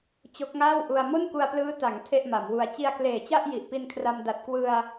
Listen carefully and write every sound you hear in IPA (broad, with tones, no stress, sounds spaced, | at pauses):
t͡ɕ o˦˥ k̚ ŋ aː˥˩ w ʔ u˧ a̯ m o˥˩ n k u˧ a̯ p l ɯː˦˥ t a˩˦ ŋ tʰ e˥˩ ʔ m a˩˦ m w u˧ a̯ t͡ɕ i˧ a̯ k l eː˨˩ t͡ɕ a˥˩ ʔ j i˨˩ ʔ p i˧ n kʰ r a˧ m d a˨˩ t̚ k w ɯ˧ a̯